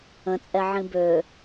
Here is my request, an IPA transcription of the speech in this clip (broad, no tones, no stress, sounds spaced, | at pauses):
ə̃ t͡sʼ ɛ ʕ ĩ b ø